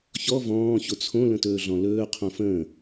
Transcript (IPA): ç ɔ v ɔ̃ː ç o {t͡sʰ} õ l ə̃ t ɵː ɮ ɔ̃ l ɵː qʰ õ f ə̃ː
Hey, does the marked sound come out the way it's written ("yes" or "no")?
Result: yes